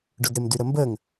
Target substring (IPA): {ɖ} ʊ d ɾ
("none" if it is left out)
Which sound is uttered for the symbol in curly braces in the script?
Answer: ɖ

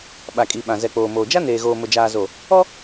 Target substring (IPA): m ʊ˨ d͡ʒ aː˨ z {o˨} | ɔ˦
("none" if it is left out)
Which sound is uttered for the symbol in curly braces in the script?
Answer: o˨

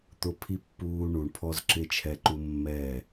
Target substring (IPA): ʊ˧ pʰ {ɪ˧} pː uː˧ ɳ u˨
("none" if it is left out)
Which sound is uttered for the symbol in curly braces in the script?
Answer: i˧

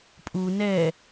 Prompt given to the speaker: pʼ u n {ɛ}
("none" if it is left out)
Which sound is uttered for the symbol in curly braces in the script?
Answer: ɛ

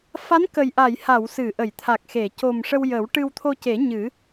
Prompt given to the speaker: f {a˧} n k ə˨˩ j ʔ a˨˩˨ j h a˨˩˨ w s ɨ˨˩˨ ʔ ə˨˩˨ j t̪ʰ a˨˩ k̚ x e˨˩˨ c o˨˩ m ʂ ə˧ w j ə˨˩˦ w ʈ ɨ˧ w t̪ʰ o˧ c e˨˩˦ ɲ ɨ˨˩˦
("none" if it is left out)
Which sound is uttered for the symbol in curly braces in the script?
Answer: a˧˥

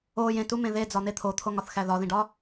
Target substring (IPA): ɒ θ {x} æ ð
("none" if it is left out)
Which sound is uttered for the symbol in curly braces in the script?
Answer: x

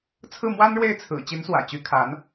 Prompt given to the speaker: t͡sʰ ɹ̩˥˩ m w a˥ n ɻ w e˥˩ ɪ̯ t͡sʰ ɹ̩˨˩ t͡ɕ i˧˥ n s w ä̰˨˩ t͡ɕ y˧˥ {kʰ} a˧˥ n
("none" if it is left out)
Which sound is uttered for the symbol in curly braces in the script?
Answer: kʰ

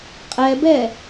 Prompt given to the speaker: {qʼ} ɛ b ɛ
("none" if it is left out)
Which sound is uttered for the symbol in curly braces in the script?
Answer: qʼ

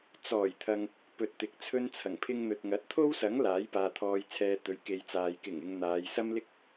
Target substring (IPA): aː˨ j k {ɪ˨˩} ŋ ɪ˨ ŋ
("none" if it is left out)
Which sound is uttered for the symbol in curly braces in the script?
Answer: ɪ˨˩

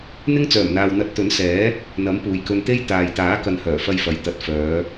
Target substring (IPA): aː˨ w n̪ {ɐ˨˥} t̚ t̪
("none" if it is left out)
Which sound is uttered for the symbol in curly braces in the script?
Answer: ɐ˨˥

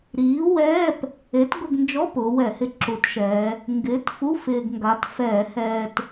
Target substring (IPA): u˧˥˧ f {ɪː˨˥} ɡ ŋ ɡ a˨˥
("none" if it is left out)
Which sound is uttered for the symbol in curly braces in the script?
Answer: ɪː˧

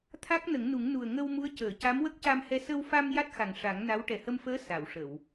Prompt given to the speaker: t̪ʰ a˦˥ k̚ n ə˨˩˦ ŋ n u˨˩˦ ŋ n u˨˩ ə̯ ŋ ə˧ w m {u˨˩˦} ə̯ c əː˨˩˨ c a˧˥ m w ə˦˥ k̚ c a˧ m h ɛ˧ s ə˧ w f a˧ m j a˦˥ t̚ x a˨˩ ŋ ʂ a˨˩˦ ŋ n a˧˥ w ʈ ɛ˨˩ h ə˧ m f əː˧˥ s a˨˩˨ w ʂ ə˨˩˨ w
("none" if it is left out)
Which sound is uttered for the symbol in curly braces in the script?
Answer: u˧˥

